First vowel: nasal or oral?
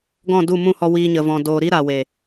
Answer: nasal